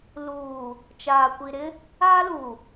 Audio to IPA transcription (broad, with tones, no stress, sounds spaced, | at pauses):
l uː˨ | t͡ʃ aː˨ kʷ i˨ ɾ ɪ˦ | aː˦ l uː˨